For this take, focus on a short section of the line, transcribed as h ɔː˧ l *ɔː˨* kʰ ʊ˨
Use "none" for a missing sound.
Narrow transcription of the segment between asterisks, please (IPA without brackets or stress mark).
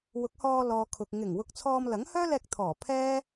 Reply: ɔː˨